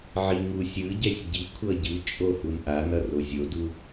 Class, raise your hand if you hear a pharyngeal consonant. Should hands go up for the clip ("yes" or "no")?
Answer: yes